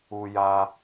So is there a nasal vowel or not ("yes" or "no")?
no